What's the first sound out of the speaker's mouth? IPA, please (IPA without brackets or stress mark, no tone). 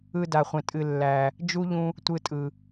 ɯ